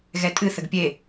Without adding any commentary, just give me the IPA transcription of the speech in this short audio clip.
ɣ ɛ tʼ ɨ θ ə ɡ pʲ e

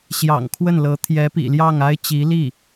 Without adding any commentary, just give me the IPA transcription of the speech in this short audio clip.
ɕ j ɑ̰˨˩ ŋ kʰ w ə˥˩ n l ɤ˧˥ t̪ʰ j ɛ˧˥ p ḭ˨˩ l j ɑ˥˩ ŋ a˥ ɪ̯ t͡ɕ i˧˥ l i˥˩

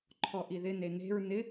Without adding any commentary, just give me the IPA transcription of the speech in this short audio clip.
ǃʰ ɔ ʔ i ð ɪ n e n e̤ ɹ n ɪ

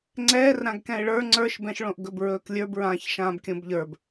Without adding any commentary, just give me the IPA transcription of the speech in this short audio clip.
ŋ͡ǀ ɛː r ɾ ã ɡ k ɛ̃ ɪ̯ ɭ ə˞ ŋ͡ǀ ə˞ ʃ b ɛ̃ ʃ ɭ õ ʔ ɡ ɵ b ɹ ɵː k lʲ ə˞ b ɹ ãː ç ʃ ãː b kʲ õ b ʎ ə˞ b

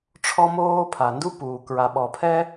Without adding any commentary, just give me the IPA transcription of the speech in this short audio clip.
ʈ͡ʂʰ ɔ˥ m oː˥ pʰ a˩ n d u˥ p uː˩ k ɹ a˩ ɓ ɔ˩ pʰ ɛ˥

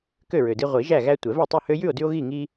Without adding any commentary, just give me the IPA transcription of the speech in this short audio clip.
k ø˥˨ ɹ ø˨ d i˦ ʁʷ i˨˩˦ ʒ æ˥˨ ɣ æ˦ tʷ ɛ˨˩˦ v ɛ˥˨ tˤ ʉ˥˨ h ø˦ j ʉ˥˨ o̯ d ʉ˦ o̯ ɣ i˥˨ ŋ i˦

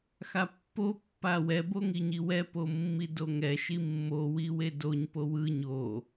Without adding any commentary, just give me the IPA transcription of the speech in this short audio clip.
x a pː o pː a w ɛ b o ŋ i ɲ i w ɛ p o mː i d o ŋ ɛ ʃ i mː o w i w e d o ɲ p o w ɯ ɲ o

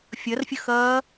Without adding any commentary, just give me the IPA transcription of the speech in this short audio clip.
fʲ ɐ r fʲ ə x ɐː

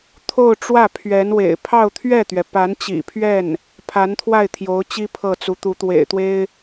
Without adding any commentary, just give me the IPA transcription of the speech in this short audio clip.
t̪ʰ o˥˧ ʊ̯ ʈ͡ʂ w ä˥˩ pʰ ɥ ɛ˧˥ n w ḛ˨˩ ɪ̯ pʰ ɑ˥˧ ʊ̯ t̪ʰ ɥ ɛ˥˩ t̪ ɥ ɛ˩ p a˧˥ n t͡ɕ ḭ˨˩ pʰ ɥ ɛ˥˩ n | pʰ a˧˥ n t̪ʰ w a˥˩ ɪ̯ t̪ʰ j o˧˥ ʊ̯ t͡ɕ i˥ pʰ ɤ˥˩ t͡s u˧˥ t̪ u˧˥ t̪ w ḛ˨˩ ɪ̯ t̪ w e˥ ɪ̯

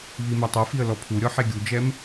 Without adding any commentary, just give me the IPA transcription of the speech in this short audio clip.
β i m ɛ tˤ o f i ə̯ l ɔ pʰ u ɾʲ ɔ ħ e ɡʲ u d͡ʒ ɛ m

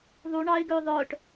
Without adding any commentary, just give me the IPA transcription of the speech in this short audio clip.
ðˤ u ɳ ɑ ɪ̯ ɡ ø ðˤ œ ʈ

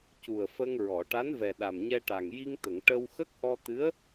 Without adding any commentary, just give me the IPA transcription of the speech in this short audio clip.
c u˨˩ ə̯ f ə˧ ŋ ɹ ɔ˨˩˨ ʈ a˧˥ n v ɛ˨˩ ɗ a˨˩ m ɲ ɛ˧ ʈ a˨˩ ŋ j i˧ ŋ t̪ ə˨˩˨ ŋ ʈ ə˧ w x ə˦˥ k̚ ʔ ɔ˧ t̪ ɨ˧˥ ə̯

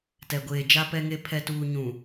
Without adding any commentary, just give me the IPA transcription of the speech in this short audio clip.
t ɛ˨ ɡʷ eː˨ d͡ʒ a˨ p ɛ˨ ŋ e˨ pʰ ɛ˨ t uː˨ ɲ ũ˨

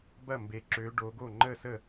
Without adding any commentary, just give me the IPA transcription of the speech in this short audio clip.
b ɐ˥˩ m b e˨˦ ǁ ø˨˦ ɖ o˨˦ ɡ o˥˩ ŋ͡ǃ ə˥˩ s ə˥˩

